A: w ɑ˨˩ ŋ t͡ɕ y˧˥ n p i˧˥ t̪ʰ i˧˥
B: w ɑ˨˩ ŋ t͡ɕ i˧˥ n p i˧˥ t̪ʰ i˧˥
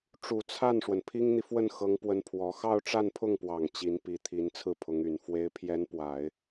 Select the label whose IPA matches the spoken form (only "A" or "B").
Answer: B